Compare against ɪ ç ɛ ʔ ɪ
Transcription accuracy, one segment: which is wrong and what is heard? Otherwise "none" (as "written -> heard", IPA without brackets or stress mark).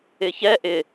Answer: none